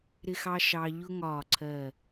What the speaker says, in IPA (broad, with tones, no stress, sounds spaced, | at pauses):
ɾ ɪ˥ x ɑ˥ ʃ ɑ˧ ʎ ʊ˥ ŋ ɒː˧˩ ǀʰ ɜ˧˩